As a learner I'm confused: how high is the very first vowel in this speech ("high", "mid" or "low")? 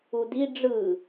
high